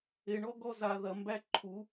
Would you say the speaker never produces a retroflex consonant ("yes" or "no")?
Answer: no